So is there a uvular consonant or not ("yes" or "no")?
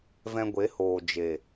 no